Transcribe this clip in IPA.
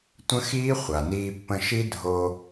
tʷ ə̃˦˥ x iː˦˥ χʷ a˩ n iː˧ pː ə̃˧ ʃ i˦˥ dʱ o˧

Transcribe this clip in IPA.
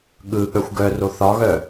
ɠ ɯ ɠ œ xʷ ɡ œ r o θ ɒ ɣ œ

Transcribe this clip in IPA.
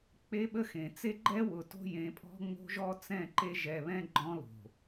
k͡p e˦ ɓ ə˦ x ẽ˨ t͡s e˦ ɡ͡ǃ ɛ˦ w ʊ˨ t o̤˦ j ẽ˨˦ pʼ ɔ̤˦ ŋ͡m o̤˦ ʒ ɔ˦ t͡s ɛ̃˦˨ ǃ e˦ ʒ ɛ˨ β ɛ̃˦ ɡ͡ǃ ɔ̃˦ l o̤˨

